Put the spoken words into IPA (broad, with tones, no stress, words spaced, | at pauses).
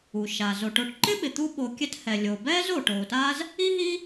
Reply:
u˩ʃa˩ zo˩ʈo˨ʈ ǃɪ˥ɓɪ˩ t̪u˦ ɓo˨kʲɛ˦thɛ˩ lʲo˩bɛː˥z o˩ ʈoː˩ta˦z | i˥ɦi˥